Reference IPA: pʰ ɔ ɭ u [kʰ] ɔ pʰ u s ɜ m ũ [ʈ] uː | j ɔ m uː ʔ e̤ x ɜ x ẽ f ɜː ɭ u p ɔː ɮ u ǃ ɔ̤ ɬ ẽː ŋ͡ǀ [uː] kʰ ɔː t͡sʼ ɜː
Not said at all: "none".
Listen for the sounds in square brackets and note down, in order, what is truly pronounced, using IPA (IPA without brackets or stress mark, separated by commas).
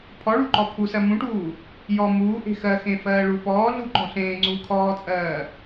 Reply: ǃ, ʈ, uː